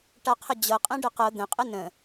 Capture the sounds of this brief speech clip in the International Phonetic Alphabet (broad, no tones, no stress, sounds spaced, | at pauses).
ʈ a qʰ ə d͡ʑ ɤ qʼ ɛ̃ ɖ ə q ɤ d̪ ə̃ qʼ ə n ə̃